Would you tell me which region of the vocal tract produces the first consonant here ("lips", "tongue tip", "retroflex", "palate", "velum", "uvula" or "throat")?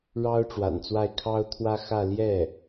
retroflex